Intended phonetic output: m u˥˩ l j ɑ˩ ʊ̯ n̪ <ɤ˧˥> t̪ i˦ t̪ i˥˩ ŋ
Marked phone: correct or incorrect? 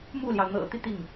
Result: incorrect